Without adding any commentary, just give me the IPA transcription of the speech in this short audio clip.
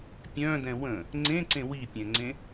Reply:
pʲ œ̃ d ɛ̃ w ə̃ | ŋ͡ǀ ẽ ǀ ẽ w i pʲ ɛ̃ ŋ͡ǀ ẽ

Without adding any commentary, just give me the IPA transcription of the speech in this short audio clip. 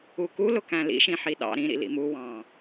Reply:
u k u l ʊ k æ̃ l ḭ ʃ ĩ ħ i ɗ ɑ̰ ɾ ĩ ɾ ḭ l ḭ m u w ɑ̃

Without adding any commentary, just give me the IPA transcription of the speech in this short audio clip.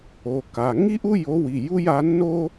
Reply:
o˩˧˩ k a˩˧˩ ŋ i˥ ʔ u˥ j o˧˥ w i˩˧˩ j u˥ j a˧˥ nː o˥

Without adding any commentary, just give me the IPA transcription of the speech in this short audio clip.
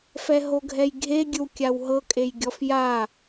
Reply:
f ɛ ɦ o ɡʱ ɛ j ɡʱ e ɡʲ ɯ w kʲ a w ɦ ɤ kʼ e j ɡʲ ɔ f j a

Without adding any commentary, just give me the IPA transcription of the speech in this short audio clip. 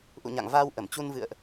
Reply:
ʔ ṵ˧˨ ɲ a̰˧˨ ŋ v aː˧ w ʔ ə˧˩ m t͡ɕ u˧ n v ɨ̰˧˨ ə̯ ʔ

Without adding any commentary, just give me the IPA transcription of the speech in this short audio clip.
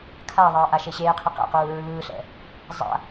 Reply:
kʰ a ðˤ ʌː ʔ a ʃ e ɕ eː qʰ i q ɛ̰ q uː ɹ ɯː ɬ ɛ̰ | zˤ a̰

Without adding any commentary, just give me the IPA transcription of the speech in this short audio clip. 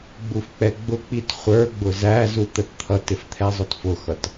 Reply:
ɡ͡b u f k͡p ɛ ɡ͡b ʊ k͡p i t χʷ ə˞ ɡ͡b ʊ z æ z u t̪ ə t t̪ʰ ʌ t ɪ f t̪ʰ ɛ zˤ ʊ t f ʊ x ʌ t

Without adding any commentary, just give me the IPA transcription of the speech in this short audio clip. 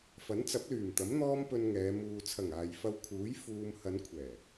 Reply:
f ɐ˨˥ n t͡s ɐ˨˥ p̚ l yː˨˩ m t̪ ɐ˨˥ m n̪ ɔː˥ m p ɵ˧ n ŋ ɛː˨˧ m uː˨ t͡sʰ ɐ˨˩ ŋ aː˨ j f ɐ˧ w kʰ uː˨˥ j f uː˧ m h ɐ˨˧ n kʷʰ ɛː˨˩

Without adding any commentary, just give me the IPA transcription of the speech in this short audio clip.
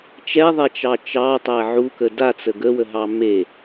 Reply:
t͡ʃ ɛ ðˤ ɛ t͡ʃ ɑ t͡ʃ ɑ tˤ æ ʕ u k ə d a t͡s ə ɡ ə w ə ɦ ɑ m e

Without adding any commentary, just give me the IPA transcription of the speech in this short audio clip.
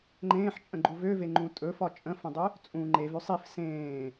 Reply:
ŋ͡ǃ ẽː ħ t͡ʃʼ ə̃ ɡ͡ǃ u v ø v e ŋ͡ǃ ũ tʼ ɵ f ɒ t͡ʃʼ ə̃ f ə̃ dˤ ø | t͡sʼ ũ ŋ͡ǃ e v ø sˤ i f s ẽː

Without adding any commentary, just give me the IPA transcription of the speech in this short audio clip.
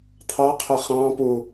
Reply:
t̪ʰ ɑ qʰ ʊ χ ɑ̃ p u

